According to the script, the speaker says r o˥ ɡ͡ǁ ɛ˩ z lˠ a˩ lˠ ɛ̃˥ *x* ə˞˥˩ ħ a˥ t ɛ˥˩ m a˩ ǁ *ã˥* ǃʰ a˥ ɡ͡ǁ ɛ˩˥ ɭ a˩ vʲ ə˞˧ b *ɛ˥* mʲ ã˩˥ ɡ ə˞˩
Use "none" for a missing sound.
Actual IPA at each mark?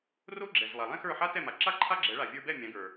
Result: x, a˥, ɛ˥˩

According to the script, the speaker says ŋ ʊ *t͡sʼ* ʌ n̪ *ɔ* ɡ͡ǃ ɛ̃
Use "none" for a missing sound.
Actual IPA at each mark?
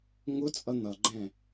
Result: t͡sʼ, ʌ

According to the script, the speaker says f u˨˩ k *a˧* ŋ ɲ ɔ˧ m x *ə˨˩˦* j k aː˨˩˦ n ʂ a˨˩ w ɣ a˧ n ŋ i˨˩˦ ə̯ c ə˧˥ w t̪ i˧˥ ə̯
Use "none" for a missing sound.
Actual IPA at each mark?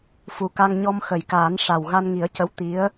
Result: a˧, ə˨˩˨

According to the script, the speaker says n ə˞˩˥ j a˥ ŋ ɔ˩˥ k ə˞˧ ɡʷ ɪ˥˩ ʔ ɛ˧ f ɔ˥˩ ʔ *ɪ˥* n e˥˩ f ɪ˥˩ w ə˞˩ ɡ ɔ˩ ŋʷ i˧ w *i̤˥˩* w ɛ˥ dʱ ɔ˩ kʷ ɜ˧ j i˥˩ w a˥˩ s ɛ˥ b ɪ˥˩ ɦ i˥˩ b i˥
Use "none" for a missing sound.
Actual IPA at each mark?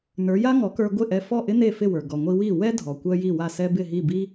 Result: ɪ˥, i˥˩

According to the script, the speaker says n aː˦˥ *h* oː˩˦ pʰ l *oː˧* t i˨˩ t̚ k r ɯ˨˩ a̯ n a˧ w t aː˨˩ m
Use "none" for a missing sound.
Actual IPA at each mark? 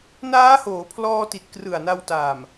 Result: h, ɔː˧

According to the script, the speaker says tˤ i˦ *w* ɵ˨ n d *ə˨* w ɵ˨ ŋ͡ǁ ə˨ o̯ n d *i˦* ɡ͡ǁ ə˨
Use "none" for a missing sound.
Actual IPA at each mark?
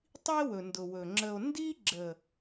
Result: w, ʊ˨, i˦

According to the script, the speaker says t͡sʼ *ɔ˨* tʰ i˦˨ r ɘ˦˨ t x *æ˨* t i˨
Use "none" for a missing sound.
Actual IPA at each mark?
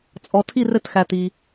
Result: ɔ˨, æ˨

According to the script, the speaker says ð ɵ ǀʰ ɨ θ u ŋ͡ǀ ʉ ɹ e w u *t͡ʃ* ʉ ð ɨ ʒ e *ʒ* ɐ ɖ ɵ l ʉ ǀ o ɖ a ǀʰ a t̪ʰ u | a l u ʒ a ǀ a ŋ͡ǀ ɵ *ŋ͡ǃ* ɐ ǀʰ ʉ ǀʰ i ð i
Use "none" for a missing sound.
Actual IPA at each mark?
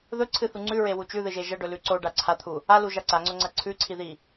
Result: t͡ʃ, ʒ, ŋ͡ǀ

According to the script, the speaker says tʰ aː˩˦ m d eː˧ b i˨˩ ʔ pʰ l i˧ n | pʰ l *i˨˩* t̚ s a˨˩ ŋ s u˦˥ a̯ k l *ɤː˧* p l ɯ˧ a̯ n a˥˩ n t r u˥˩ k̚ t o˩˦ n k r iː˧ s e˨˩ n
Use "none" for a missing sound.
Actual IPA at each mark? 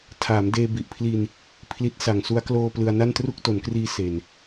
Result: i˦˥, oː˧

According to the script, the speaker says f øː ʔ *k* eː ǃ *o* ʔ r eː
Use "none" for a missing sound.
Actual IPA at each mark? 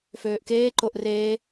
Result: k, o

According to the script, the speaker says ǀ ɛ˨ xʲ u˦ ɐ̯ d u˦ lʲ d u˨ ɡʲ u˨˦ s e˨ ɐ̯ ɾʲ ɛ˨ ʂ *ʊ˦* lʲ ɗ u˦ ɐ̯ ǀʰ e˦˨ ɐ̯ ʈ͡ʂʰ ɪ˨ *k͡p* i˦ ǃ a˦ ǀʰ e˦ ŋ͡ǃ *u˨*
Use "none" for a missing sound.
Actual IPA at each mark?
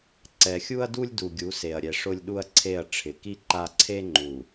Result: ʊ˦, k, u˨

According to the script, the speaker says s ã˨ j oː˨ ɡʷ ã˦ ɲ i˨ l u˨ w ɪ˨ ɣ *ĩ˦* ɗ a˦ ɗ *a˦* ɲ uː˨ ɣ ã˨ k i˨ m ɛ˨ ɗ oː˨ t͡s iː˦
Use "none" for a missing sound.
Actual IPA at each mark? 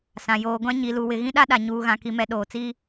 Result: ĩ˦, a˨

